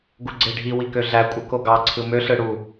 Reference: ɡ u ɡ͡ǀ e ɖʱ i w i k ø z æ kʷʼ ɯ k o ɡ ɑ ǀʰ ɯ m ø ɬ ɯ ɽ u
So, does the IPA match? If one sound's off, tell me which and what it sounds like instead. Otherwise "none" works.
z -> ɮ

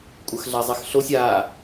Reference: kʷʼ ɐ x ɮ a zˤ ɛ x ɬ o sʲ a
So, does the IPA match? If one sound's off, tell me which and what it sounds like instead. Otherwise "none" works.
none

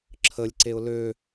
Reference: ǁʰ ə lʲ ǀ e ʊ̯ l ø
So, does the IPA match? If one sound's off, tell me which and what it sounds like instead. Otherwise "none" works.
none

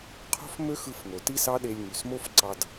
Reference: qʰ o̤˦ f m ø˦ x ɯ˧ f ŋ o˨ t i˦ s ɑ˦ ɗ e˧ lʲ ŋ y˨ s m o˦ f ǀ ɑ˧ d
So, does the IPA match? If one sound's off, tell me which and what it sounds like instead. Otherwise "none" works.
none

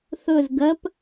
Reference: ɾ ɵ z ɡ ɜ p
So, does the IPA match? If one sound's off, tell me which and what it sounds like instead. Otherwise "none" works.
ɾ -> θ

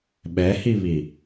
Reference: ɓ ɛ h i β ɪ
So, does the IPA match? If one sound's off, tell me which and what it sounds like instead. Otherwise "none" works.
ɪ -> i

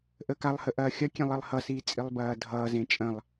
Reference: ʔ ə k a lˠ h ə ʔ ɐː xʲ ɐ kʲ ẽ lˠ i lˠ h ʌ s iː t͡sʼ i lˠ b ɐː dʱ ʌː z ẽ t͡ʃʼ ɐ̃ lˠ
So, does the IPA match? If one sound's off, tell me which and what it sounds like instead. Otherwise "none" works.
none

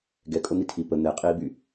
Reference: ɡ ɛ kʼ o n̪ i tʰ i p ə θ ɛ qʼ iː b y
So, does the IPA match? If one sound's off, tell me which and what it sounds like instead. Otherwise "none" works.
θ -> n̪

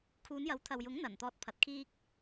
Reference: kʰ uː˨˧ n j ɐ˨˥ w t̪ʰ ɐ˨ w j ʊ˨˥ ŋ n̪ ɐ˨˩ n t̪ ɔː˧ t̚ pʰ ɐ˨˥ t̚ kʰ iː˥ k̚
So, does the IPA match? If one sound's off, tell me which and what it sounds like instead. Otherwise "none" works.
none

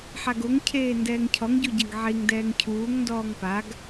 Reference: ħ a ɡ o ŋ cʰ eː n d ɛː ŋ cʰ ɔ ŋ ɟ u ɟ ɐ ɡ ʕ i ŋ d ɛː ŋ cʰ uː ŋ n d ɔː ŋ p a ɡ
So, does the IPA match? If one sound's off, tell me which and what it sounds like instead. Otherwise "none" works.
none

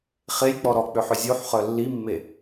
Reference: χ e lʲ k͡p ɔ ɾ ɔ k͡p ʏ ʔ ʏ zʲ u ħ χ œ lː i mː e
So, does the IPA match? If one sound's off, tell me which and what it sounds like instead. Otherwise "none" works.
ʔ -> ħ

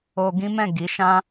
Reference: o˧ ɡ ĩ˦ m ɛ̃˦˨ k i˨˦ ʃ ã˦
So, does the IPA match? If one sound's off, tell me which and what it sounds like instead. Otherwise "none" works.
k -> ɡ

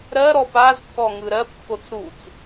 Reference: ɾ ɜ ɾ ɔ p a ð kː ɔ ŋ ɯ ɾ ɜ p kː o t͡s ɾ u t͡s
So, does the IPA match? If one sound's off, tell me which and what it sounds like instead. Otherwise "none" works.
ð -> z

